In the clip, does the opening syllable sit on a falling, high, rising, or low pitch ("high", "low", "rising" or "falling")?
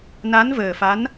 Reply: rising